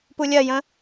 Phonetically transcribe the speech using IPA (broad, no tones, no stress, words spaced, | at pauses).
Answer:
pulʲɜjə̃